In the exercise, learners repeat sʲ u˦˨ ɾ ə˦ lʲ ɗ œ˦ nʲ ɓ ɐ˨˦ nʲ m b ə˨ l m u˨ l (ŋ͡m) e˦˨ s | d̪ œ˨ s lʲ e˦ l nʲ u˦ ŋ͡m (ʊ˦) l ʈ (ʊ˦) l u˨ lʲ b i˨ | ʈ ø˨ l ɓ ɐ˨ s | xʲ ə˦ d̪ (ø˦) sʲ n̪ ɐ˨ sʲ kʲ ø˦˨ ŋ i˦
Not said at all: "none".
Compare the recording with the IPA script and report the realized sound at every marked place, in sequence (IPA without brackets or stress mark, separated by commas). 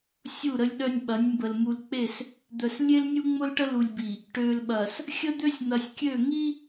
k͡p, ʊ˦, ə˦, ø˦